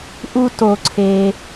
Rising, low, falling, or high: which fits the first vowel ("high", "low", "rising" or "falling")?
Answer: high